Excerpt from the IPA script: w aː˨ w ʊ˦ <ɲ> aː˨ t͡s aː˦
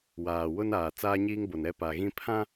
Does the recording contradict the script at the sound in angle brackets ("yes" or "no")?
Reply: yes